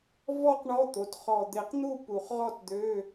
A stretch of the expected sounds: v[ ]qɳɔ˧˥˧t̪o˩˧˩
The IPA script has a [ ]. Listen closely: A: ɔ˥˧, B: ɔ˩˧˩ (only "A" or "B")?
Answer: A